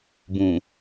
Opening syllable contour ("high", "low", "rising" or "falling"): low